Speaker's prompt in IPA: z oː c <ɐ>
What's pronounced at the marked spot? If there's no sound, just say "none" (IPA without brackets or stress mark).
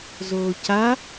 a